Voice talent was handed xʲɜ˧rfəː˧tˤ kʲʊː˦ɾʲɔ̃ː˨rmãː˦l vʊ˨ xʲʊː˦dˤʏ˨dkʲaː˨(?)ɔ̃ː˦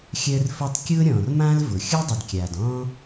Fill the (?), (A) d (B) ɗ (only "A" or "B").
A